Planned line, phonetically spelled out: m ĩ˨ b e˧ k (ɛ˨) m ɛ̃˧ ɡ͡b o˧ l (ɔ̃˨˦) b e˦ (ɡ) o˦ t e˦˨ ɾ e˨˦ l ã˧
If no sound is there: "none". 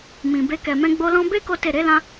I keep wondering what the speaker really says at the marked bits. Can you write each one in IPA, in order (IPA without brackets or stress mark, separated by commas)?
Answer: ɛ˨, ɔ̃˧, k